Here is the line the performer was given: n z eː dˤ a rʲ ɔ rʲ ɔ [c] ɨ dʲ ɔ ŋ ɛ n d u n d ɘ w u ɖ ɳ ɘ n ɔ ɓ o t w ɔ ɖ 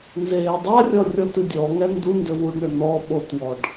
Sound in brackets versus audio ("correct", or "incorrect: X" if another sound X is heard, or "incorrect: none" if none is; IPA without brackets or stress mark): incorrect: t